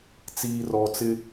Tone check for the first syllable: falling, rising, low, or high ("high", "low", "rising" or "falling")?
low